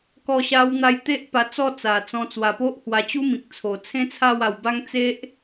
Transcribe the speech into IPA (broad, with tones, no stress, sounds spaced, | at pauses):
k ɔ˧ ɕ a˧ w n̪ a˧ j t̪ e˦ ʔ p a˧ t͡s ɔ˥˧ t͡s a˨˩ t͡s ɔ̃˧ t͡s w a˨˩ p o˦ ʔ h w a˧ t͡ɕ u˦ m ĩ˨ k̚ t͡sʰ o˨˩ t͡sʰ ẽ˦ t͡sʰ a˥˧ w a˧ w b a˦ ŋ t͡s e˦ ʔ